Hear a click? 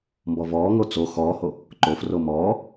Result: yes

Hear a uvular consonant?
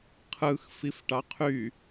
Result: yes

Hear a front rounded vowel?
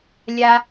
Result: no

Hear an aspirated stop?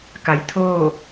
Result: yes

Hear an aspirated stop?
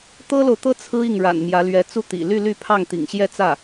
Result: yes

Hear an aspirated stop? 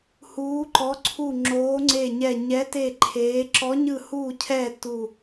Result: yes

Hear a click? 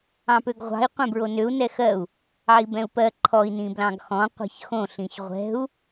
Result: yes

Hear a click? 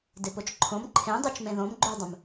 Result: yes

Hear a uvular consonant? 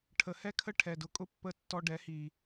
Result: no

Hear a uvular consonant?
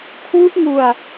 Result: no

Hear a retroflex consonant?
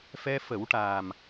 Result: yes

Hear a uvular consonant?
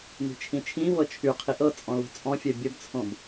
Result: yes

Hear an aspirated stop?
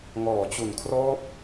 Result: yes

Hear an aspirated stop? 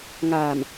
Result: no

